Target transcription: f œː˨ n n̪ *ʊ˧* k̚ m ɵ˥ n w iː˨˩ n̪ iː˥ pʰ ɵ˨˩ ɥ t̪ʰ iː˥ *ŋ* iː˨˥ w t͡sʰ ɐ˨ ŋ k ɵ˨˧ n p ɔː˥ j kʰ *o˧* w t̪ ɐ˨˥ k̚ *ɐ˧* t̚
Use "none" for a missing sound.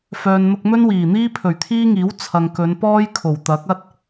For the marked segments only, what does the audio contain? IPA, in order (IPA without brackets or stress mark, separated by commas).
ʊ˧, ŋ, o˨˩, ɐ˥